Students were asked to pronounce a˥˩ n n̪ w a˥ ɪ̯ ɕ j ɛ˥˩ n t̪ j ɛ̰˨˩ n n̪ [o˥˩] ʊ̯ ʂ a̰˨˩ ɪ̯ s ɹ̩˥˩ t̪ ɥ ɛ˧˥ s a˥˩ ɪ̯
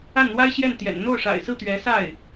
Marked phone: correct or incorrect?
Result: correct